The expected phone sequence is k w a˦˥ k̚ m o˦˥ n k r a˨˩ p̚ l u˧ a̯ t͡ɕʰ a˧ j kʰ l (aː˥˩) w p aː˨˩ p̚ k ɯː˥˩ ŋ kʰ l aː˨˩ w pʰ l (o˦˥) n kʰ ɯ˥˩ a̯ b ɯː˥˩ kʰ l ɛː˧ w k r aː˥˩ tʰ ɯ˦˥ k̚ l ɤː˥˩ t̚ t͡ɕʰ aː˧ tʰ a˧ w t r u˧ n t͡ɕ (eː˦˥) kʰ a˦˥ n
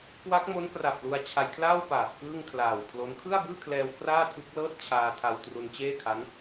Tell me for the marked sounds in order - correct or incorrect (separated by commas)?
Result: correct, correct, incorrect